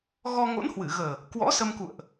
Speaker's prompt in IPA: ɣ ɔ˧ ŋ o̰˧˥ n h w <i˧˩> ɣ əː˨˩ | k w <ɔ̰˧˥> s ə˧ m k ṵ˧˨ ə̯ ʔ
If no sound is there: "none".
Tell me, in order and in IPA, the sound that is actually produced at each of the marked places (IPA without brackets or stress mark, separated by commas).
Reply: ɨ˧˩, ɔ̰˧˥